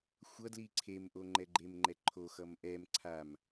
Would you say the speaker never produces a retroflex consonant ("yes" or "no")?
yes